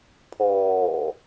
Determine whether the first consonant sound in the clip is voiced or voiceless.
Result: voiceless